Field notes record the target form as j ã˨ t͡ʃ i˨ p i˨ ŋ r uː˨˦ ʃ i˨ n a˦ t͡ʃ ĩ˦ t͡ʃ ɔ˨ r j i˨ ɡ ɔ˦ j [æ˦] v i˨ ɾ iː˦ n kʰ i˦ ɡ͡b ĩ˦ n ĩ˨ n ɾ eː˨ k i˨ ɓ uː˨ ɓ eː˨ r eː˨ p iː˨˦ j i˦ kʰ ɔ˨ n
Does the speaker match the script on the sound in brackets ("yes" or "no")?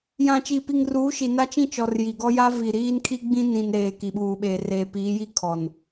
no